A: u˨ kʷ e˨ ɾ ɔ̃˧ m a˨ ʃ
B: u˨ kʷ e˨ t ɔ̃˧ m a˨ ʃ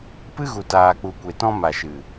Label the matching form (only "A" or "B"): B